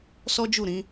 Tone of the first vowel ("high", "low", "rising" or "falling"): high